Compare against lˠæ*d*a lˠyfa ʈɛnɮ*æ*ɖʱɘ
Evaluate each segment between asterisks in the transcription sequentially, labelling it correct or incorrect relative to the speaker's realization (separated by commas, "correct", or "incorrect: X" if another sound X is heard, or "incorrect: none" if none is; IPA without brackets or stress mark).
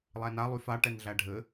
incorrect: n, correct